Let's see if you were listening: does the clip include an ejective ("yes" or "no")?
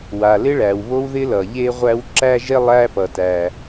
no